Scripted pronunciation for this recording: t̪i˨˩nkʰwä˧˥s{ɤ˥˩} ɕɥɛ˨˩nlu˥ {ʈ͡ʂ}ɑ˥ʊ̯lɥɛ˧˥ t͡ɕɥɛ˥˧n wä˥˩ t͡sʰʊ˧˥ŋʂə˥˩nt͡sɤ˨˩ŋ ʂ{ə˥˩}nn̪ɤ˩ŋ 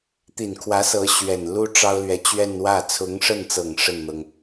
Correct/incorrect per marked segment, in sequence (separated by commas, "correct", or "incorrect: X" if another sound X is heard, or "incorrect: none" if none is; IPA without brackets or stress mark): incorrect: ɤ˧˥, correct, correct